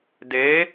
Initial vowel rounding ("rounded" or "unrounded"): unrounded